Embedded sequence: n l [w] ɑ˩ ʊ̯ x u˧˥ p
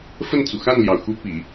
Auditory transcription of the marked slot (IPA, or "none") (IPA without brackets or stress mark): j